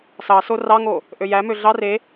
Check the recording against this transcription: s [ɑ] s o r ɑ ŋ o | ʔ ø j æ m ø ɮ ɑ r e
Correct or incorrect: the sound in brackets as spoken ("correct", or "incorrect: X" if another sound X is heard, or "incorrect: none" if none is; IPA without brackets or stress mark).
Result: correct